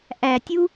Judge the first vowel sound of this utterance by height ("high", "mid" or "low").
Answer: low